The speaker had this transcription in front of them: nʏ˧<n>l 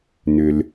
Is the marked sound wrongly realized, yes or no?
yes